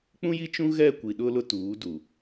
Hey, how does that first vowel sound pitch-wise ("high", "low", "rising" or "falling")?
high